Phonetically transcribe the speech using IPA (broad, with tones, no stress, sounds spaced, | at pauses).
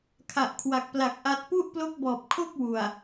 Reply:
kʰ a˨˩ ʔ kʰ w a˨˩ k̚ p l a˨˩ k̚ ʔ a˦˥ t̚ p u˥˩ ʔ p l o˦˥ k̚ b ɔː˨˩ p̚ kʰ o˥˩ k̚ w u˨˩ a̯